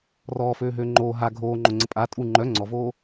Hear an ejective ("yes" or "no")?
yes